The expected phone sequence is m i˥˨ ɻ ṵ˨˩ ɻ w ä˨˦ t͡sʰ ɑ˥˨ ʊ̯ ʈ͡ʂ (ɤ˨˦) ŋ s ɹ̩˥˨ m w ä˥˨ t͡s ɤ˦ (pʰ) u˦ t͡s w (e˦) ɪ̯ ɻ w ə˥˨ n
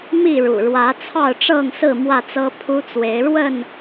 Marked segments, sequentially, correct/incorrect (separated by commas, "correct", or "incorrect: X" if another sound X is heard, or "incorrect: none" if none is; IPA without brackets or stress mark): incorrect: ɤ˥˨, correct, incorrect: e˨˦